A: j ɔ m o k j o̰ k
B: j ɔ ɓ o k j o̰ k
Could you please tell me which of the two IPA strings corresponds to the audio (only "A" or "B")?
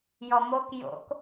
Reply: A